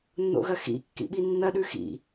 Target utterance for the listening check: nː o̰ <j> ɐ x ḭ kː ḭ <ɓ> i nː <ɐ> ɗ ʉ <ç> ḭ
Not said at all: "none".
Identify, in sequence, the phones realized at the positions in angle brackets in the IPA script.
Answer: ɣ, ɓ, ɐ, x

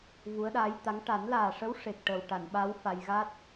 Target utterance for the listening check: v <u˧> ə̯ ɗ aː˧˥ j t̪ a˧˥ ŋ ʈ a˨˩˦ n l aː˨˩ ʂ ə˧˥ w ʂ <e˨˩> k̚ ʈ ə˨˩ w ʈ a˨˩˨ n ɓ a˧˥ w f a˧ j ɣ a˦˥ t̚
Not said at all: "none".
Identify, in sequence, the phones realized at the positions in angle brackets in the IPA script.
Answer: u˧˥, e˨˩

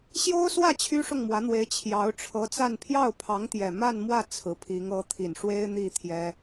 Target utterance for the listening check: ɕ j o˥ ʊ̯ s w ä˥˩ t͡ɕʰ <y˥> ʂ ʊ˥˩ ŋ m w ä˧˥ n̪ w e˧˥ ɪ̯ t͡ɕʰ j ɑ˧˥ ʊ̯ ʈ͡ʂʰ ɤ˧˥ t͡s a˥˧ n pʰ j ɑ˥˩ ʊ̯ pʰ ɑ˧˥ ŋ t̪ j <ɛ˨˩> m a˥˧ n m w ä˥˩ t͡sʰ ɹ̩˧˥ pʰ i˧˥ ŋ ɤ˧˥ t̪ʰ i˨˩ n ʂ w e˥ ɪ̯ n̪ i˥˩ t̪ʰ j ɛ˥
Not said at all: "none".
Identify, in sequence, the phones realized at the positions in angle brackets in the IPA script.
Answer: y˥, ɛ˨˩

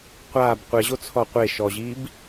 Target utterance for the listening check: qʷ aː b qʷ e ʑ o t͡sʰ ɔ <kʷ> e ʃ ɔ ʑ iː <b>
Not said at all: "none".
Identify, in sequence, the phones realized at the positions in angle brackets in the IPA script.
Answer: qʷ, b

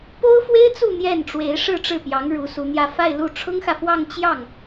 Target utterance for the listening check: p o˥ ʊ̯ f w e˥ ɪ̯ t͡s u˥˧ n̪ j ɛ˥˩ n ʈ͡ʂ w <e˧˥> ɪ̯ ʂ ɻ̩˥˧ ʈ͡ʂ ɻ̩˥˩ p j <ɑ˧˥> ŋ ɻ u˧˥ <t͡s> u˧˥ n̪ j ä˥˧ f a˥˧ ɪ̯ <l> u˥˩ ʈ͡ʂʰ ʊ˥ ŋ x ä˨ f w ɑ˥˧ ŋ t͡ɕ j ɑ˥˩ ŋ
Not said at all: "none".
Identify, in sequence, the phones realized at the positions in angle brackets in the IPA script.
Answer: e˧˥, ɑ˧˥, s, l

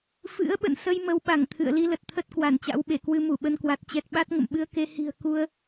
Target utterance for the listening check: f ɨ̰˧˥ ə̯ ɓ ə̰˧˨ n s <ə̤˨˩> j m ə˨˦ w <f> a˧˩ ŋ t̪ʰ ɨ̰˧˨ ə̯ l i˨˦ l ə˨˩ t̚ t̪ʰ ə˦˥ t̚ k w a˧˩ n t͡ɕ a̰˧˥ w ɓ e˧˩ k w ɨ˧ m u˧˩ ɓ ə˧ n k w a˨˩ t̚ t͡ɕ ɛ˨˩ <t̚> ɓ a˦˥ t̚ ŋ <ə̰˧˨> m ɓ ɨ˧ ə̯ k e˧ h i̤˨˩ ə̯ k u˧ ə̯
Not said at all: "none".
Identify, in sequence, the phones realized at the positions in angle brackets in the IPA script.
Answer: ə˧, ɓ, t̚, ə̰˧˨

